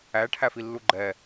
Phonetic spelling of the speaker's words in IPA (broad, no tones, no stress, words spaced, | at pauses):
æʈʰæfilːu ɡ͡ǃɛ